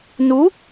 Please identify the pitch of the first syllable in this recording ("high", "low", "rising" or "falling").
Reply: rising